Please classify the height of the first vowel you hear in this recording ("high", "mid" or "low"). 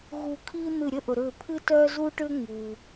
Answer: high